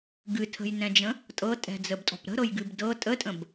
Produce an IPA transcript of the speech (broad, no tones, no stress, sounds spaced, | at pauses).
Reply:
ɡ ɨ tʰ ə̤ j n ɛ̃ d͡ʒ ə̃ | tʼ ɤ tʼ ɛ̤ d͡z ə b tʼ ɔ̤ p ɾ ə̤ ɾ ɤ j ɡ ɨ b d ɤ tʼ ə tʼ ə̃ b